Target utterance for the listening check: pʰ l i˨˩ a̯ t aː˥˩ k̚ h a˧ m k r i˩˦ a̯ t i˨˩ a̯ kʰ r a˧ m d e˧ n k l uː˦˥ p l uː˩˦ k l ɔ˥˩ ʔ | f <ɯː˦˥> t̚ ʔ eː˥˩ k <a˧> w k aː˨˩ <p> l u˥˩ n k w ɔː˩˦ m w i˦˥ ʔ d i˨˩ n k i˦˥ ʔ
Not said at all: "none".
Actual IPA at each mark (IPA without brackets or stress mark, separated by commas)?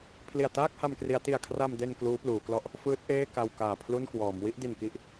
ɯː˦˥, a˧, pʰ